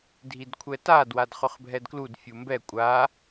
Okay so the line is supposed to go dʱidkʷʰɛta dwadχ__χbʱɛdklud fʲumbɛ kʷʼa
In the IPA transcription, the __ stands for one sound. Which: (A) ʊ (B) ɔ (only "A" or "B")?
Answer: A